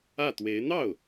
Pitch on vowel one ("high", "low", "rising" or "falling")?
falling